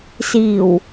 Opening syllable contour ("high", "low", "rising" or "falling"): low